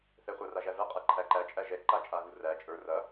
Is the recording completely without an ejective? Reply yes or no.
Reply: no